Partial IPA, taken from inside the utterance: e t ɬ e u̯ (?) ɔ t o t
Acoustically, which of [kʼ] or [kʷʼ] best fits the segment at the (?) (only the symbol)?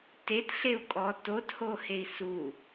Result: kʼ